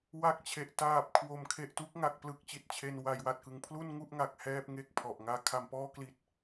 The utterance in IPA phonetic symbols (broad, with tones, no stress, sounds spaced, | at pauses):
w a˦˥ k̚ t͡ɕʰ e˨˩ ʔ t aː˨˩ p̚ kʰ w o˩˦ m kʰ e˨˩ ʔ t u˦˥ k̚ ŋ a˨˩ k̚ p l ɯ˥˩ k̚ t͡ɕ i˨˩ t̚ t͡ɕʰ e˧ n w a˩˦ j w a˨˩ t̚ k ɯ˩˦ ŋ pʰ l u˥˩ n ŋ u˥˩ ʔ ŋ a˨˩ k̚ h ɛː˥˩ p̚ ŋ e˥˩ k̚ pʰ ɔ˨˩ ʔ ŋ aː˦˥ kʰ a˧ m p ɔː˥˩ k l i˦˥ t̚